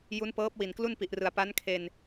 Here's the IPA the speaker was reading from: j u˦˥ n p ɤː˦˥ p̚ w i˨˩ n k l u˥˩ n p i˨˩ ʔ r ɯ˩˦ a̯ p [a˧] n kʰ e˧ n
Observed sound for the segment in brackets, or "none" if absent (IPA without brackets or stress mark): a˦˥